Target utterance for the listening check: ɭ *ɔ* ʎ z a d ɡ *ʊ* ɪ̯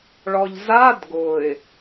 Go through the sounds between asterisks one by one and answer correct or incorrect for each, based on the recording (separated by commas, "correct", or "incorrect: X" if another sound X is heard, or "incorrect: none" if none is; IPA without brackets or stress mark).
correct, correct